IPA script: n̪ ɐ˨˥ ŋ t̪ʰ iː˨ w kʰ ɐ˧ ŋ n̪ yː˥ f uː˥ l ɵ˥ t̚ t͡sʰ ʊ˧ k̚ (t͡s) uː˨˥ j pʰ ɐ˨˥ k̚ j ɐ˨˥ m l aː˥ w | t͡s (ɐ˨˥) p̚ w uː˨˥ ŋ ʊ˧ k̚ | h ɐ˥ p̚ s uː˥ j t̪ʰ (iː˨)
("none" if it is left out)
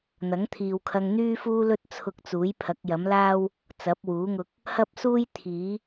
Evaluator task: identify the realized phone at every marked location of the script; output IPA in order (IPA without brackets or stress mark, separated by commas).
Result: t͡s, ɐ˨˥, iː˨˥